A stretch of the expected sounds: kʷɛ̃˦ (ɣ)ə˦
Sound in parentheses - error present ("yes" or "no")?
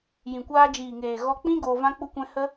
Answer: yes